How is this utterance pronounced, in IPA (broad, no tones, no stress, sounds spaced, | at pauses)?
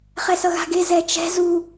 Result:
χ ɛ s ʌ ɣ a̤ ɡ e z ɛ t͡ʃ ɛ̤ z u